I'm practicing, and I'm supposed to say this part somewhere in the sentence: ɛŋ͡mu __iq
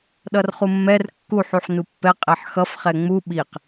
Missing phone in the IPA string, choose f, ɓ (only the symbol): ɓ